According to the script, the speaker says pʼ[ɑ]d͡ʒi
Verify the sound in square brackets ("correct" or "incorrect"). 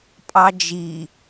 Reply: correct